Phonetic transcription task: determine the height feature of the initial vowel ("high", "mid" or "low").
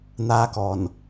low